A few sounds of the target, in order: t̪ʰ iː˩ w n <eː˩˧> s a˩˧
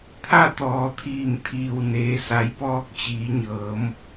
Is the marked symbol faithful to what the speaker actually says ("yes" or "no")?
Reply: yes